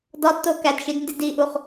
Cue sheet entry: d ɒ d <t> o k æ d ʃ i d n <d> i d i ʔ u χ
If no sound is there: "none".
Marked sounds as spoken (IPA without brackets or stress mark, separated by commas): t, d